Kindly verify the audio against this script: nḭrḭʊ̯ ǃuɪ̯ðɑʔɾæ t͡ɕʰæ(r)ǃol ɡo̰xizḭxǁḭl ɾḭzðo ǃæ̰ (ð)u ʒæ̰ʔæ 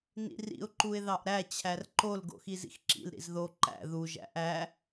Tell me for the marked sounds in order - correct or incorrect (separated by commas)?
correct, correct